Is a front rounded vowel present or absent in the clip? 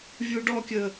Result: absent